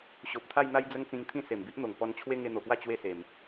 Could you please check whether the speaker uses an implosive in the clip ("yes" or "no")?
no